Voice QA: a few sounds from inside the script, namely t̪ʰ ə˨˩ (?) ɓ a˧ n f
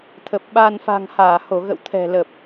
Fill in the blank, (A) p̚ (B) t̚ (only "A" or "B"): A